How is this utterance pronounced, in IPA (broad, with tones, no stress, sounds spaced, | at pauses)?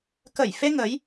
k ə˧˩ j f e˧ ŋ ə˨˦ j